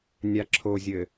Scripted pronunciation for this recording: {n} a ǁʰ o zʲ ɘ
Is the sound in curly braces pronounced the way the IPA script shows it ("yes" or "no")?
no